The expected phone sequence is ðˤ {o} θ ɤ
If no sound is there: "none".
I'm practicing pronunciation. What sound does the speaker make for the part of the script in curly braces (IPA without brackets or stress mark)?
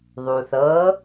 u